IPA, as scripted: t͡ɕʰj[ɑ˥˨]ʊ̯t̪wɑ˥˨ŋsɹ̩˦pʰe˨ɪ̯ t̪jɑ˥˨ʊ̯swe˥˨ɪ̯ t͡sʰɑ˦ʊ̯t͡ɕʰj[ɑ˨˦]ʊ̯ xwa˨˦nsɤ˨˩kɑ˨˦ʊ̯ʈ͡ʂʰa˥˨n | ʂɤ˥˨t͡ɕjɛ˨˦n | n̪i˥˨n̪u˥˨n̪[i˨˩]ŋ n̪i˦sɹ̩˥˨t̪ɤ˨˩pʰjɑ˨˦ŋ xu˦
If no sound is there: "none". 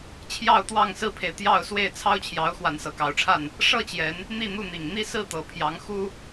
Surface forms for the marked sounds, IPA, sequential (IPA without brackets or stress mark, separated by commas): ɑ˥˨, ɑ˨˦, i˨˩